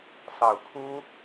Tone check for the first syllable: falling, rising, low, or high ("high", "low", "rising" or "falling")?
low